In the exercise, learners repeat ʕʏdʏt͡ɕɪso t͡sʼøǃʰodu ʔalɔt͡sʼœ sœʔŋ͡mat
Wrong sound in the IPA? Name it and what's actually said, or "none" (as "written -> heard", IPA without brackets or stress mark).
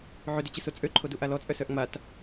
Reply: none